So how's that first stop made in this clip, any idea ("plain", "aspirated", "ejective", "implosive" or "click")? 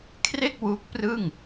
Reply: aspirated